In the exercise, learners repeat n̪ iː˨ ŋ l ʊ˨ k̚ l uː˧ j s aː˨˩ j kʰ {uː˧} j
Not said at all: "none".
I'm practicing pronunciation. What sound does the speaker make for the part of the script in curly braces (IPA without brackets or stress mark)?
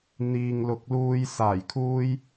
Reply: uː˥